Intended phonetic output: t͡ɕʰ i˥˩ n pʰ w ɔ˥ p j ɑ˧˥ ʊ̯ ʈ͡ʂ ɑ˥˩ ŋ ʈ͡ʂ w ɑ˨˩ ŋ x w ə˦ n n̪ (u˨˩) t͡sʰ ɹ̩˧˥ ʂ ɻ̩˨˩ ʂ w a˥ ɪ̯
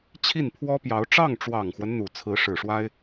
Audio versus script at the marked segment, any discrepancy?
no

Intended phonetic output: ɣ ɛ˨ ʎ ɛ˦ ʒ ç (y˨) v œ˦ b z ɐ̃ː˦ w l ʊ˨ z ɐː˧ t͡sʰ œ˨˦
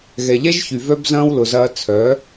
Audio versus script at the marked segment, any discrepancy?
no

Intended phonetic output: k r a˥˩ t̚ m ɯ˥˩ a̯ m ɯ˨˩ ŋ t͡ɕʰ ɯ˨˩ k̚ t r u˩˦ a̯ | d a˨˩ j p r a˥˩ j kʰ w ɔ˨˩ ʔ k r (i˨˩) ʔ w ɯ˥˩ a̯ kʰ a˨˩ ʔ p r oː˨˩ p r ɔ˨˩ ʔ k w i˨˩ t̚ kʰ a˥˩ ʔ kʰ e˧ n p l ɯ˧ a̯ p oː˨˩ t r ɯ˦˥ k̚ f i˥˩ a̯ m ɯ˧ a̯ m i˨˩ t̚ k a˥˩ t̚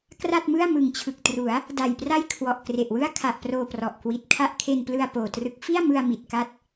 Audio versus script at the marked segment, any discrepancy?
yes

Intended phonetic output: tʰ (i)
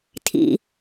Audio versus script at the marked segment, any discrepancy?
yes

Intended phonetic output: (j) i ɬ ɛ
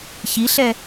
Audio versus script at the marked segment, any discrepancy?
yes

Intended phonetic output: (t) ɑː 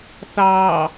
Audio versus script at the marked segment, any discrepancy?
yes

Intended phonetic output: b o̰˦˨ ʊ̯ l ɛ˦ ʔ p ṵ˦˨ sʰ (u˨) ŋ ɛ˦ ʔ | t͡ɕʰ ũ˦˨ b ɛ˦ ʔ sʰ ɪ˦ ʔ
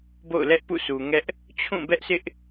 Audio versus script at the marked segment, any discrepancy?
no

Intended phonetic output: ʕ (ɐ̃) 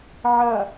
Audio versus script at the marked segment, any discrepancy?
yes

